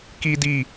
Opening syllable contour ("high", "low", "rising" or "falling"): high